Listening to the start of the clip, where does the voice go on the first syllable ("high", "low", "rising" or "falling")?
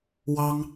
high